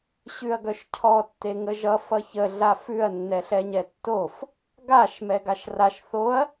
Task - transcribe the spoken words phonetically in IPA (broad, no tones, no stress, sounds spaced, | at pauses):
ɕ ʉ ɐ̯ ɡ œ ʃ cʰ ɔ tː e ŋ ə ʒ ʌ f ʌ ç ə ɮ a f ʉ ɐ̯ nː ɛ ɬ ɛ ɲ ɛ tː o f | ɡ a ʃ m ɛ ɡ a ʃ r a ʃ θ o ɐ̯